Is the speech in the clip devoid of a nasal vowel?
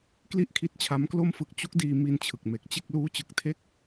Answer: yes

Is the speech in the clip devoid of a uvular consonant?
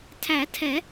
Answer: yes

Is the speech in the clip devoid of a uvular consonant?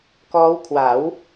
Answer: yes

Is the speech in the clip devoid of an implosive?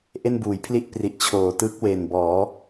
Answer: yes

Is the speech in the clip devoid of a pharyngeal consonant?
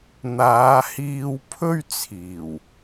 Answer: yes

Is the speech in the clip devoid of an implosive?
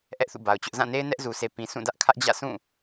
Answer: yes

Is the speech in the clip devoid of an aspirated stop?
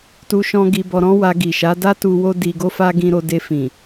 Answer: yes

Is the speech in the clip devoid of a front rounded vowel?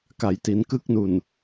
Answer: yes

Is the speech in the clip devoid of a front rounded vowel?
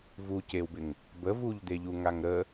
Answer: yes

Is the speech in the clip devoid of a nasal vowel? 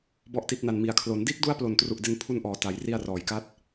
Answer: yes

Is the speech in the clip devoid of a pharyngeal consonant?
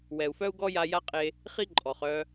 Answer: yes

